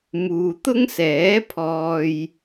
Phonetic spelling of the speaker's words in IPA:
muː˨t̪ʊ˥ŋsɛː˨˥pʰɔː˧j

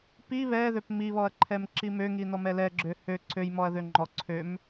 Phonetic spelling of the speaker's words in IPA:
pi βɛðøp miβɔɐ̯ǃʰɛmǁi møŋinɔmɛ lɛɡ͡ǁø hø ǀʰøjmɔɐ̯ðø ŋ͡ǃɔ ǀʰøm

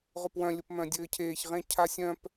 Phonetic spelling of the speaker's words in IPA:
ʁʊpwœ̃ lʲʊpmœ̃dʲɘːcʰeːç ʁẽcʰasʲœ̃p

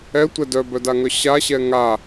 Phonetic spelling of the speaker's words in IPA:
ɛtʷɛ dœbœdaŋœ ɕaɕɛ ŋa

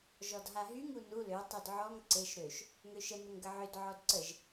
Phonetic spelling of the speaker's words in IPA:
ʒɔdɦaɦyŋ unu lø tˤødʕɔŋ ǀeʃ ɾøʃ | ŋøʃə nəŋɡəʕød ʕɔdǀəʒ

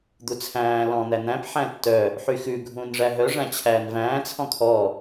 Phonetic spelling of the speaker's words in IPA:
d̪ut͡sʰæ̃ː lɔ̃ n̪æn̪æ̃p ħæ̃tːœ | ħyxʉ ɡʱũːnʐæɦœ ʐæ̃t͡ɕʰæːnvæ̃ː t͡sʰɔ̃kʰɔ

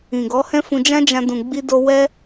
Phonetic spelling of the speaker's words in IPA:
ĩ˨ ɡɔ˨˦hɛ̃˦fũ˧ d͡ʒã˦d͡ʒã˧ dũ˨ɡ͡bi˧do˧ wɛ˦

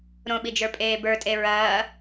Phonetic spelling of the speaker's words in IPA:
ɾõɓid͡ʒə˞pʼeː bə˞tʼe ɹɐː

